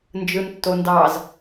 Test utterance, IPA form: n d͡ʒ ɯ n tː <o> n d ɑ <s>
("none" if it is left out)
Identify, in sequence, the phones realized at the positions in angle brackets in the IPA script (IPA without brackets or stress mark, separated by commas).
o, z